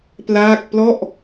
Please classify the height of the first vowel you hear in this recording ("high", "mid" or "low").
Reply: low